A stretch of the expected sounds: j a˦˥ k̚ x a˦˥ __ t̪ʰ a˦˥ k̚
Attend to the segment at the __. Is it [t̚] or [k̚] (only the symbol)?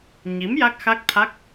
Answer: k̚